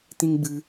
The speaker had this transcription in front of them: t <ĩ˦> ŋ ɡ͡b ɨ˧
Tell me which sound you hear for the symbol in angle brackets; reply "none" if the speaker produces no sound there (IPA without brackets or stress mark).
ĩ˦